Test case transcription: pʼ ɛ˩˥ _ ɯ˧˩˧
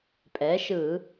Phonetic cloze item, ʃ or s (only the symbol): ʃ